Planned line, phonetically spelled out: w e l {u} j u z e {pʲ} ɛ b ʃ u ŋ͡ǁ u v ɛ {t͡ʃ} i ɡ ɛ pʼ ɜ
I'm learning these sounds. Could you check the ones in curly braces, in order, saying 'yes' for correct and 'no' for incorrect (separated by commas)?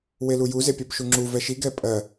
yes, yes, no